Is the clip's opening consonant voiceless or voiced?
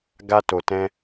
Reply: voiced